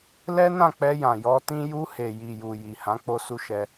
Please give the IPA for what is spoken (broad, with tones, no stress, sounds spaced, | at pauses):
l ɛ˦ n ã˦˨ k͡p ɛ˧ j ã˨ j ɔ˧ t ĩ˦ j u˧ h e˨ j i˨ j u˨ j i˨ h ã˨˦ k͡p o˦ s u˦ ʃ ɛ˧